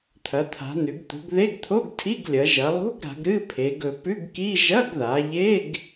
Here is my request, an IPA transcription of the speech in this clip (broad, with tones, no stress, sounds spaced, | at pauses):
t̪ʰ ɐ˩˧ t̪ʰ a̤˩˧ n ʉ˩˧ ɡ t̪ ṳ˩˧ ɡ ð e˧˥˧ ɡ t̪ʰ o˧˥˧ ɡ tʰ i˧˥˧ ɡ lʲ ɐ˩˧ ʒ ɐ˩˧ lˠ ṳ˧˥˧ ɡ ɾ a̤˩˧ ɡ ɾ ɨ˧˥˧ pʰ e˩˧ ɡ ɵ˩˧ p ʉ˧˥˧ ɡ k i˧˥˧ ʒ ɐ˧˥˧ ɡ ð a˩˧ ʎ e˧˥˧ ɡ